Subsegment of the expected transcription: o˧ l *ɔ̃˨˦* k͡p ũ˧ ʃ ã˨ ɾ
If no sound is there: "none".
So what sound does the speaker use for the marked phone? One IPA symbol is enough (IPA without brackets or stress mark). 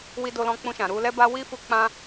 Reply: ɔ̃˧